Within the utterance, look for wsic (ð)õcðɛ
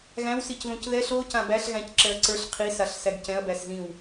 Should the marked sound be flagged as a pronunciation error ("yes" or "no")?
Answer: no